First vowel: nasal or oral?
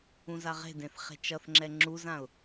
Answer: nasal